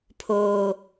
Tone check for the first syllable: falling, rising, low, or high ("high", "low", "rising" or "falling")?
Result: high